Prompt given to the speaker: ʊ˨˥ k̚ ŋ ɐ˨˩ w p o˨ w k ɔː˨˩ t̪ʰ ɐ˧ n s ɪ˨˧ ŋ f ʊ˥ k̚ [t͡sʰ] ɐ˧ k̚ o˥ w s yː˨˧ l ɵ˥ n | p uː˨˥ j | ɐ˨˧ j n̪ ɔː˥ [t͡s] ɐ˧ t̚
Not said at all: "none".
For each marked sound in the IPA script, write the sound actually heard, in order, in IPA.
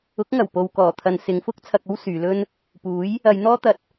t͡sʰ, t̪

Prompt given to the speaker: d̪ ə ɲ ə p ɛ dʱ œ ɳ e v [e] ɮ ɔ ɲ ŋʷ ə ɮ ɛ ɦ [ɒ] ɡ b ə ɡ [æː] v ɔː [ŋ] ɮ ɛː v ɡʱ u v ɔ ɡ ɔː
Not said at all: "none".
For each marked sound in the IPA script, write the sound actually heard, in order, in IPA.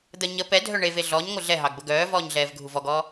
e, ɑ, œː, ɲ

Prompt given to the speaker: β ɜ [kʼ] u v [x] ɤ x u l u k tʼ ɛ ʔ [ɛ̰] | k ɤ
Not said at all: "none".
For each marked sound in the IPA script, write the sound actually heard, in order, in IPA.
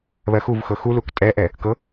x, x, ɛ

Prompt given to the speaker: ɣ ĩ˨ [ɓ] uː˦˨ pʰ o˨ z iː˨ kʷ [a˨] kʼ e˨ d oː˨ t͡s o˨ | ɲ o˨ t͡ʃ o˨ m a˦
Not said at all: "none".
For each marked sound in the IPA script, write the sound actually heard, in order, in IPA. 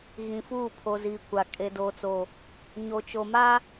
f, a˨

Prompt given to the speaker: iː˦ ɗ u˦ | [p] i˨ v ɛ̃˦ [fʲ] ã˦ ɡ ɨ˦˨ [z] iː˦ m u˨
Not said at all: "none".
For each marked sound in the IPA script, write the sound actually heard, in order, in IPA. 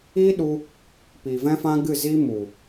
p, f, z

